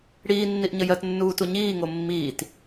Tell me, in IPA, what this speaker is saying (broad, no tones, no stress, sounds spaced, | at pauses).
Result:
ɽ iː nː i ʔ ɲ ə j ɜ t nː uː t u ɲ iː ŋ o mː iː t